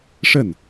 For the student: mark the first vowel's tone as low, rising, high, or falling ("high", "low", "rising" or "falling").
falling